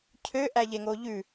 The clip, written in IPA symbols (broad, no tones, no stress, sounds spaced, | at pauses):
cʰ ø ʔ æ ʎ e ŋ o ʎ ʉ